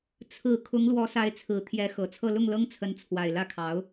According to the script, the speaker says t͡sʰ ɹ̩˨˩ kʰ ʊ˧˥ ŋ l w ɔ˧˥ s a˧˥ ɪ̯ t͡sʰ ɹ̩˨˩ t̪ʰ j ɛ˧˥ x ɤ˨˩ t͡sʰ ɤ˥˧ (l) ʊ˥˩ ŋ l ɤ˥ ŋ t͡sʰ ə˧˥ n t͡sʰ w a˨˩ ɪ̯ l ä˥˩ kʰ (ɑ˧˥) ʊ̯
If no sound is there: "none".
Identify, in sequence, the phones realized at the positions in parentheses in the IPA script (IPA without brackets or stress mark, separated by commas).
l, ɑ˧˥